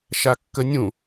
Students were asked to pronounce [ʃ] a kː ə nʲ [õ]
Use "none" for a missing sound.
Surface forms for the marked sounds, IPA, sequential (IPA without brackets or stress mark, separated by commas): ʃ, ũ